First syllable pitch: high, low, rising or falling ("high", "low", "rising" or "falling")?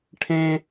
high